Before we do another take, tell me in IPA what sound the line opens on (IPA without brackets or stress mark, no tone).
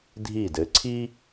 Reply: dʱ